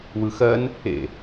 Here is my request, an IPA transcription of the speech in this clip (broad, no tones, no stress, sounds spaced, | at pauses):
w ɯ x ɜ n | ḛ